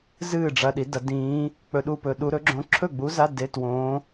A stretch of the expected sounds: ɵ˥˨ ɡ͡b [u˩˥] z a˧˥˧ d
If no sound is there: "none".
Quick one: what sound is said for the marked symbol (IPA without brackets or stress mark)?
u˧˥